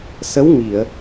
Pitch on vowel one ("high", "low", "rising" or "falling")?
rising